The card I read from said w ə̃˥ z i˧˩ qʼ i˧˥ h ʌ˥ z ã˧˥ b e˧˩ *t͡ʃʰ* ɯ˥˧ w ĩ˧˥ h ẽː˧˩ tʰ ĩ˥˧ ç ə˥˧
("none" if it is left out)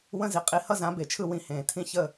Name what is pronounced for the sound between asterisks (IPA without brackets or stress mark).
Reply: t͡ʃʰ